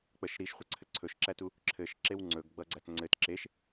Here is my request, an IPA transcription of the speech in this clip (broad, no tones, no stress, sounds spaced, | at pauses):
k͡p ə ʃ ɾ i ʃ χʷ ʌ ǀʰ ɘ ǀʰ ɵ ʃ ǁ æ t u | ǁʰ ɘ ʃ ǁ e w ŋ͡ǀ ɵ ɡ ɡ͡b ʌ ɡ͡ǀ æ t ŋ͡ǀ ɘ t ǁ e ʃ